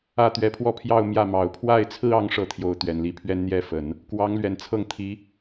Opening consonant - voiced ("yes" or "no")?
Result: no